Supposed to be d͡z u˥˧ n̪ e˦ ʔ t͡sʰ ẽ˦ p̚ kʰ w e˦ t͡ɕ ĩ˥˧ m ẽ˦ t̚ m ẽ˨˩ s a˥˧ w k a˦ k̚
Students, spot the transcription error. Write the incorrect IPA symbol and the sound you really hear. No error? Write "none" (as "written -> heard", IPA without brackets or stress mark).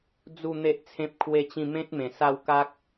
none